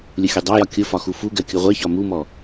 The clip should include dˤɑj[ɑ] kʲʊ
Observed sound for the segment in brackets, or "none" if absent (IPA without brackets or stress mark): ɒ